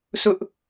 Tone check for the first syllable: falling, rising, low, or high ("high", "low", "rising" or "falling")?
high